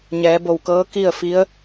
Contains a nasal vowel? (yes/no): no